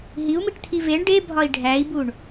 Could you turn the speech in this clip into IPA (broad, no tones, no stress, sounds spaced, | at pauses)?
ɦ i u̯ m i ʈ t̪ʰ i v e ɳ ɖ e bʱ ɒ i̯ ɖʱ æ i̯ b u ɳ